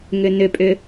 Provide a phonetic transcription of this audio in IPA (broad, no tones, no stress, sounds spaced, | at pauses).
ŋ ʏ n ʏ pʼ ʏ